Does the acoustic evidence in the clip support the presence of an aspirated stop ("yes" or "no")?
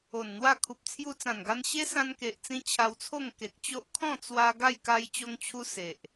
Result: yes